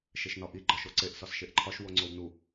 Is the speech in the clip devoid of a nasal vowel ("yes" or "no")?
yes